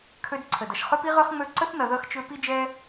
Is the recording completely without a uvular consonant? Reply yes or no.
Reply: no